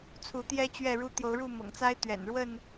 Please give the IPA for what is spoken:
t͡sʰ u˨˦ t̪ j ɛ˦ t͡ɕ ɥ ɛ˥˨ ɻ u˦ t̪ j o˨˦ ʊ̯ ɻ u˥˨ m ɤ̰˨˩ ŋ t͡s a˦ ɪ̯ t̪ ɥ ɛ̰˨˩ n ɻ w ə˥˨ n

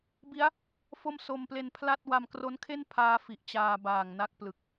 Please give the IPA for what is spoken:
b i˦˥ a̯ | f o˥˩ m s o˧ m p l e˧ n pʰ l a˥˩ t̚ w a˧ m k r o˦˥ n kʰ e˥˩ n pʰ aː˦˥ f i˨˩ ʔ t͡ɕ aː˧ b aː˨˩ ŋ n a˥˩ k̚ p l ɯ˨˩ k̚

